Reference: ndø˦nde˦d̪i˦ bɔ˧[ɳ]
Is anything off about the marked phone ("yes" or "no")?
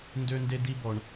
no